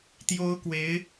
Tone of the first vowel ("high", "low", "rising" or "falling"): high